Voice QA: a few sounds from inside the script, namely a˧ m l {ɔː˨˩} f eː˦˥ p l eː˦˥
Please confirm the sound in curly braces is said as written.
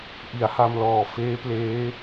yes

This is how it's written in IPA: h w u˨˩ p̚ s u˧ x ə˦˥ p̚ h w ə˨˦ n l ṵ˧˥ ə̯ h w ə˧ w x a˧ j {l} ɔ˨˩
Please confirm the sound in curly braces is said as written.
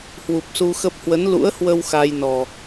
no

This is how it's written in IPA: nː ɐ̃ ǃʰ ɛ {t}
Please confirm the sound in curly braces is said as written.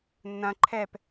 no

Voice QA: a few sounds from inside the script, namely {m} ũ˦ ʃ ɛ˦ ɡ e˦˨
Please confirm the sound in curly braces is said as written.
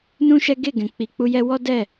no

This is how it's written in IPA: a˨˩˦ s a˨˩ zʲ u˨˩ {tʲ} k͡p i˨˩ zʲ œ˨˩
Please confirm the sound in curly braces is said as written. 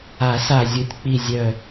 yes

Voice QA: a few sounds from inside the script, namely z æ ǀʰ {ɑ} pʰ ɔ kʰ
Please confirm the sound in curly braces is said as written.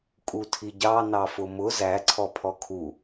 no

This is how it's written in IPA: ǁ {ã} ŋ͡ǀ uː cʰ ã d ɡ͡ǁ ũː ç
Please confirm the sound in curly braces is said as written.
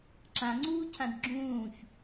yes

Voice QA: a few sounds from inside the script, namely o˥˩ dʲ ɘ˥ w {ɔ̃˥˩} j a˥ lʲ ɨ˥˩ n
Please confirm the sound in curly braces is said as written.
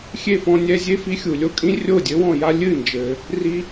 yes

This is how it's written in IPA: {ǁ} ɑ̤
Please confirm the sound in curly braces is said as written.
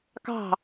no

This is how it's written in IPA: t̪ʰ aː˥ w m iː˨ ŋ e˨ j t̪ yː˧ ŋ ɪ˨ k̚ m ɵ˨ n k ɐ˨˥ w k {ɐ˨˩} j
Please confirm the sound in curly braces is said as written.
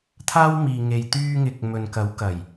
yes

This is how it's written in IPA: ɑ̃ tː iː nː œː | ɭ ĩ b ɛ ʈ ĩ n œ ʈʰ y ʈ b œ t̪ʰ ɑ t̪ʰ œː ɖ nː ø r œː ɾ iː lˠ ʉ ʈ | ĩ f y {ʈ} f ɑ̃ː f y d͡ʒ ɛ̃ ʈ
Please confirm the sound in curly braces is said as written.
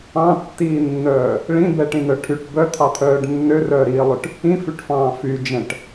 yes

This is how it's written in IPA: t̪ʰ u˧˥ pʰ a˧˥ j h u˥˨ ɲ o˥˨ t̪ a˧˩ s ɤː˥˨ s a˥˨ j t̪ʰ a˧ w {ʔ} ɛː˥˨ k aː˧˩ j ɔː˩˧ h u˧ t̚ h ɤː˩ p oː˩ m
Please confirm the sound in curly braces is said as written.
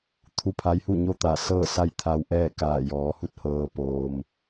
yes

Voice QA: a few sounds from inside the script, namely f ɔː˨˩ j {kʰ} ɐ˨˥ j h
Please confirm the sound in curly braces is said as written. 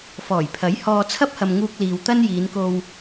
no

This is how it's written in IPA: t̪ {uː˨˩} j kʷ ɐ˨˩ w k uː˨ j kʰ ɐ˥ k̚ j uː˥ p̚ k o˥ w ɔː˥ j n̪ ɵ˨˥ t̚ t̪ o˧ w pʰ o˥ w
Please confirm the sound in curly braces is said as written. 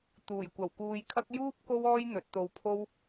yes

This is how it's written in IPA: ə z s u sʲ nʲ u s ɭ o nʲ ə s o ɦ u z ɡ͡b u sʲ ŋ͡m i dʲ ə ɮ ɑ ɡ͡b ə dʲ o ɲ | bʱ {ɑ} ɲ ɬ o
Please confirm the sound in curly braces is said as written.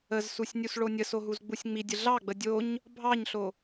yes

